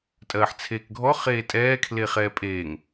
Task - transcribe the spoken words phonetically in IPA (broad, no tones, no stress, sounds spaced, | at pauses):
tʼ ɜː ħ t͡sʰ eː k ɡʱ ɔ χ eː tʼ ɛː kʰ l e χ ɛː pʼ eː ŋ